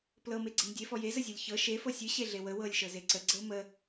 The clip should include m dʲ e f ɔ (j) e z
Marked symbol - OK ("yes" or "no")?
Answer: yes